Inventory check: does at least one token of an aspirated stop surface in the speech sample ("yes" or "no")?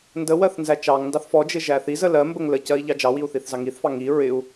no